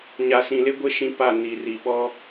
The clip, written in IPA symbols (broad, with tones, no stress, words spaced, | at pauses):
ɲa˨sĩ˨lɪ˦ɡʷɪ˦ ʃĩ˦pa˦˨ ni˨ri˨ ɓɔ˦